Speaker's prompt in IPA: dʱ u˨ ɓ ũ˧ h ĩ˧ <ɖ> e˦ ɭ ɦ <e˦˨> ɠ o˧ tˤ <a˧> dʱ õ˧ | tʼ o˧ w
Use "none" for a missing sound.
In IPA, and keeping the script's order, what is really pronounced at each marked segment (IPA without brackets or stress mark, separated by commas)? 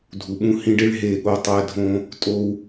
ɖ, e˦˨, æ˧